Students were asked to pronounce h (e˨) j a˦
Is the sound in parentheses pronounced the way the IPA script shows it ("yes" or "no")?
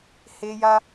no